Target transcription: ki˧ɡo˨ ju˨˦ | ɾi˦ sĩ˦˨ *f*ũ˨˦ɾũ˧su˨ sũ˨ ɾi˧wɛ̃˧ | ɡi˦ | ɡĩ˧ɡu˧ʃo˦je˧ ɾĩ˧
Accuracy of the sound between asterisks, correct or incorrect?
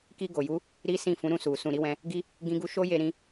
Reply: correct